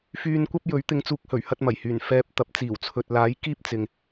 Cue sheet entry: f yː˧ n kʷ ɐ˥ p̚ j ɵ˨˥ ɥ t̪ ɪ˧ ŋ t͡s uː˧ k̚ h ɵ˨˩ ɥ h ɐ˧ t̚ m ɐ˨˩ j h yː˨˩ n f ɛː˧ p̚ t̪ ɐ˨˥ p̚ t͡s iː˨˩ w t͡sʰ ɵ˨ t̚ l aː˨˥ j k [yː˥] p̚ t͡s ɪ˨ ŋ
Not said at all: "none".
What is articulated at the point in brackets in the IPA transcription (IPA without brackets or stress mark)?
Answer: iː˥